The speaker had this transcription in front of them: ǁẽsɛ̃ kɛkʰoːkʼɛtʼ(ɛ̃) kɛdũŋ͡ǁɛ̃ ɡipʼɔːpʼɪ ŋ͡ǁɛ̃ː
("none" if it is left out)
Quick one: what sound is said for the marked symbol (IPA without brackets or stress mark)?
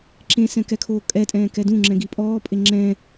ɛ̃ː